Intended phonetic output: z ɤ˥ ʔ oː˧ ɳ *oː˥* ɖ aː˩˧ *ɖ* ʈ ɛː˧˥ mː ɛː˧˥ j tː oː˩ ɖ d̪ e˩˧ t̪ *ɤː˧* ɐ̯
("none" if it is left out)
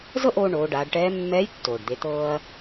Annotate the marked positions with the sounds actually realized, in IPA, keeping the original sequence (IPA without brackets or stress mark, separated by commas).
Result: oː˩˧, ɖ, ɤː˧